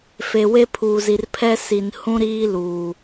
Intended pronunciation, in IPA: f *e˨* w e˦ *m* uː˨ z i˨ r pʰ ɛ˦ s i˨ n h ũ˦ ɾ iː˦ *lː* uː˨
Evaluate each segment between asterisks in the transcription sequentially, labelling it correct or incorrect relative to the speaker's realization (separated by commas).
correct, incorrect, incorrect